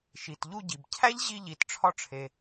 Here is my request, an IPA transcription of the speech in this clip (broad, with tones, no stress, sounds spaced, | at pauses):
ʃ i˩ t ʎ u˧ ɟ i˩ b cʰ æ˥ ʎ ʑ i˧ ʎ i˩ t ʈ͡ʂʰ ɒ˧ ʈ͡ʂʰ e˩